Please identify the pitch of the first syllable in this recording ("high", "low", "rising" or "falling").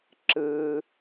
high